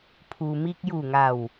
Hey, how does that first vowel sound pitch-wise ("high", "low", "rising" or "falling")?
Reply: low